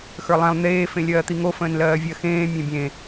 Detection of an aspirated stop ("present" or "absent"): absent